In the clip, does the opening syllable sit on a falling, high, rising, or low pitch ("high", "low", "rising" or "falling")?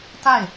falling